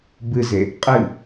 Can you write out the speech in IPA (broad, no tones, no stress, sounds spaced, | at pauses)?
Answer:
b ɨ z e | qʼ ɨ